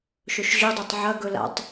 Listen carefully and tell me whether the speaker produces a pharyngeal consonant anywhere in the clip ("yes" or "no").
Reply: yes